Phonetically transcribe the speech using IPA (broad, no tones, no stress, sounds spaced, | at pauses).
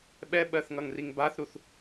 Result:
ɓ ɛ ɓ ɜ θ ŋ ʌ ŋ r i ŋ b a θ ɾ u θ